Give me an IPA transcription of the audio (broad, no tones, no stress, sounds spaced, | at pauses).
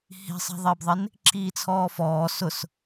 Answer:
h i̤ sˤ ɛ̤ ðˤ ɪː b ðˤ ɪ n | ǁ iː t͡sʰ ɔː f ɔː s ʊ s